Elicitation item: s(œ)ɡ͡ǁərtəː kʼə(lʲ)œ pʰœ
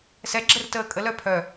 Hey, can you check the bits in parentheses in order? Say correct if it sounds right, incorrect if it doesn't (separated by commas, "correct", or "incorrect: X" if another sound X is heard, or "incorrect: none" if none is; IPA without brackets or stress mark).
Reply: incorrect: ɛ, incorrect: l